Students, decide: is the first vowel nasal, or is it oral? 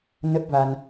oral